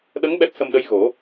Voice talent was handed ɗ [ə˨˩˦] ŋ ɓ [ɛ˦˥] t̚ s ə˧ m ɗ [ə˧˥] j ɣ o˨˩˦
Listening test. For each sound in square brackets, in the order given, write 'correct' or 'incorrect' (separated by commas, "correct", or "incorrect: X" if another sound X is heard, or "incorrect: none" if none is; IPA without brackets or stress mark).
incorrect: ə˧˥, correct, correct